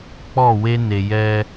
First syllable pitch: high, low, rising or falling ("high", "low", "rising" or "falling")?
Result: falling